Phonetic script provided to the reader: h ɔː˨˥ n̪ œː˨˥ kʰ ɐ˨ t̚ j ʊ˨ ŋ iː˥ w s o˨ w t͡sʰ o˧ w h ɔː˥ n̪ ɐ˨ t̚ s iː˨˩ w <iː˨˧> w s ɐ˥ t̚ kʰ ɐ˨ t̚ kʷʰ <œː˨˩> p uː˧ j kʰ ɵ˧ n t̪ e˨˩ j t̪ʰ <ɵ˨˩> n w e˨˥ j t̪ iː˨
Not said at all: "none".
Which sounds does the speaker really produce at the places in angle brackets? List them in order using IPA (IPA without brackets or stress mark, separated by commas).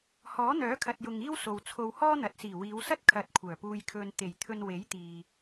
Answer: iː˨˧, œː˨˩, ɵ˧